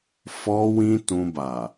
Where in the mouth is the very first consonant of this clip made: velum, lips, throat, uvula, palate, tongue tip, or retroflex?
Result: lips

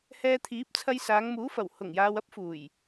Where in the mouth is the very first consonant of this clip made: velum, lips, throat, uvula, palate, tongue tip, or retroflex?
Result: throat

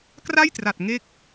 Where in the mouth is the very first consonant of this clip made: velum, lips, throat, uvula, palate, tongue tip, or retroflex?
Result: velum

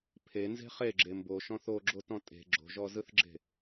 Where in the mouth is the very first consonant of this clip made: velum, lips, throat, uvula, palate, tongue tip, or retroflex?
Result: lips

